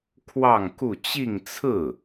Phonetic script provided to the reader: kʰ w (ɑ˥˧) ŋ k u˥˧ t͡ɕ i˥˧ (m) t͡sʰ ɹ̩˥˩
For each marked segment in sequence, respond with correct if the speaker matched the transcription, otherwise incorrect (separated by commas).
correct, incorrect